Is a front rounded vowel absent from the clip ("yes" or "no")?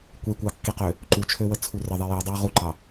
no